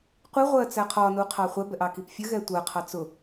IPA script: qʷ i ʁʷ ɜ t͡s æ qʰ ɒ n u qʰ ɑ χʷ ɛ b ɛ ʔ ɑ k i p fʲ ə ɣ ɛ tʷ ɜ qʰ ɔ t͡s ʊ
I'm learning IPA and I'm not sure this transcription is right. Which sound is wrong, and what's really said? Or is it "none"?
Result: ɔ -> ɑ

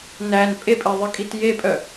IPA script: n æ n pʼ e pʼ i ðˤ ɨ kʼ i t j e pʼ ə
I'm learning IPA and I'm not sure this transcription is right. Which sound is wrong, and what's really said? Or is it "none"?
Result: ə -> œ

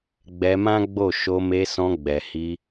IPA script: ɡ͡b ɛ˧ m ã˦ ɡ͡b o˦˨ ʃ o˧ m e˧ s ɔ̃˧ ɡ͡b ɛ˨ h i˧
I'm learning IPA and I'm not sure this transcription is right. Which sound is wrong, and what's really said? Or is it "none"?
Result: none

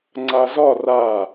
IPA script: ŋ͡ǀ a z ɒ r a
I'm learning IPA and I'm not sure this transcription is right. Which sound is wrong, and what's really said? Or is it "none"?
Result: none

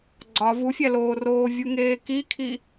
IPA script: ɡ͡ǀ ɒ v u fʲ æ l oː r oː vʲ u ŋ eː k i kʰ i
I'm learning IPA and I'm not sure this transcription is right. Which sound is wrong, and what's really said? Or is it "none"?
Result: none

